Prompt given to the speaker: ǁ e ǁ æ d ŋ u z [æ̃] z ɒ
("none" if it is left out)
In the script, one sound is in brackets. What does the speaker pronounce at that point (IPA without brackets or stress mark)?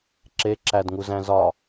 æ̃